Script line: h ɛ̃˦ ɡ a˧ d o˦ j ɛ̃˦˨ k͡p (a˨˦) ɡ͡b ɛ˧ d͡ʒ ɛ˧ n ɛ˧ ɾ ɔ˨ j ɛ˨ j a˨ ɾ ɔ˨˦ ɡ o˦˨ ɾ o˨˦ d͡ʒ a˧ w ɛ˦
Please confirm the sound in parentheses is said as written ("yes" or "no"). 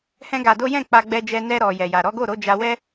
no